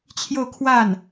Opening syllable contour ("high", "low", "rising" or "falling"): falling